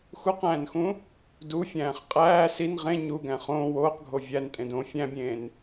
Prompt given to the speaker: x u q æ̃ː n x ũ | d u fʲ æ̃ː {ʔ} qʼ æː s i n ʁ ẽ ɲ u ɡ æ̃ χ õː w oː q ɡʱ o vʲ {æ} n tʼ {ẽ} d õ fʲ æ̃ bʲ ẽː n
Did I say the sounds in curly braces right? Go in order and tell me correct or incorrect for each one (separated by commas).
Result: incorrect, correct, correct